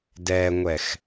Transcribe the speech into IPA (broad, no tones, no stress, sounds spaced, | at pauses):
d ɛ ŋʷ ɛ x